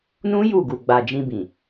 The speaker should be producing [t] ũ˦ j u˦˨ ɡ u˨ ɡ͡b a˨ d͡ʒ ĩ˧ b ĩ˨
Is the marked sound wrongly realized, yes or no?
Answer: yes